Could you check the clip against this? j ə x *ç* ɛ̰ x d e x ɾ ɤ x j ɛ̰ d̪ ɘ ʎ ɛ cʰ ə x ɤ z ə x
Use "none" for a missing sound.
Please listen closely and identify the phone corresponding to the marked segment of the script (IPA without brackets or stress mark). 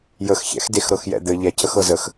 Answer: ç